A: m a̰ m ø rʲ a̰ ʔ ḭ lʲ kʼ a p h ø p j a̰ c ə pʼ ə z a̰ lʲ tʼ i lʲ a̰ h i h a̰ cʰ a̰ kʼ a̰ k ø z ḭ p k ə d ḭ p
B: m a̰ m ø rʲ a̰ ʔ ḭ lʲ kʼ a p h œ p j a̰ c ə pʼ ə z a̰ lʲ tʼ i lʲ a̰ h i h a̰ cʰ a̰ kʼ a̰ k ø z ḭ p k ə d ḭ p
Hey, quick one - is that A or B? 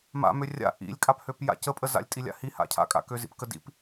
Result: A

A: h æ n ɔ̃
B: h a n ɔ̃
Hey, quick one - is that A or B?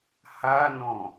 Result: B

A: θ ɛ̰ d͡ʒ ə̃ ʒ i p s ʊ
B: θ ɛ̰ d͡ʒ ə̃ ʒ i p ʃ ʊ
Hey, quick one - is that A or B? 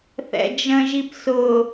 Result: A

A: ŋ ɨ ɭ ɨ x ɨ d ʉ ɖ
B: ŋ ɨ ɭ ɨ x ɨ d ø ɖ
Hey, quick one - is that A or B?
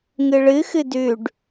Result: A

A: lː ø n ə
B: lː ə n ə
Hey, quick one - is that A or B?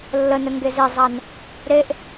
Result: B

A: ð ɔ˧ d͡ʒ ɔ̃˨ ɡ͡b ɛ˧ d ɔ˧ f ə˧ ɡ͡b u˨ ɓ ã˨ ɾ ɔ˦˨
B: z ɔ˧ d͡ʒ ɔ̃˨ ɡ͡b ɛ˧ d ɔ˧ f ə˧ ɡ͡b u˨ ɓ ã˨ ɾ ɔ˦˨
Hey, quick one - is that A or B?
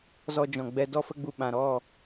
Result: B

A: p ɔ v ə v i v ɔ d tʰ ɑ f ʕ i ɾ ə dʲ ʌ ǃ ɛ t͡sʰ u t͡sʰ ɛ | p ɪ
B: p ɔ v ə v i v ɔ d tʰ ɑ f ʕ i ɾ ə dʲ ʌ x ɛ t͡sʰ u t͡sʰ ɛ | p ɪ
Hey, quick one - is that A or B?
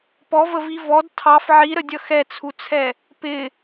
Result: B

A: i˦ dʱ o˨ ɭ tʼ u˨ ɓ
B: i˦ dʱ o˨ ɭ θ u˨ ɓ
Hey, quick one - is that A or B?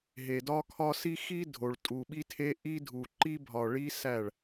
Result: A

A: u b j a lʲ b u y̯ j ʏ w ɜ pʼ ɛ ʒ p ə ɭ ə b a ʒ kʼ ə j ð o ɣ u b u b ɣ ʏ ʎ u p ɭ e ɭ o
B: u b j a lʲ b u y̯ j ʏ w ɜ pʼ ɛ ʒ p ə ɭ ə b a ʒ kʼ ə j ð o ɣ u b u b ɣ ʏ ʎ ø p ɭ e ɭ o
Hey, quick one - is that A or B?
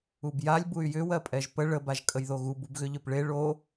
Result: B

